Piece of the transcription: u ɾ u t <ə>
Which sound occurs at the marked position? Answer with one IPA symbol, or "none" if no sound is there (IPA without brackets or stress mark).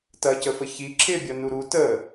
ə